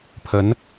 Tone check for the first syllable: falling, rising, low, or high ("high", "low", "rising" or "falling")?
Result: rising